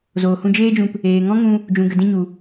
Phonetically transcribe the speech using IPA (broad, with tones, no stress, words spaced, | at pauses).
zoː˨hũ˧d͡ʒeː˦d͡ʒũ˧p | eː˨ŋɔ̃˦ŋũ˧ | d͡ʒũ˨ ɡə˨ dĩ˧ɲu˨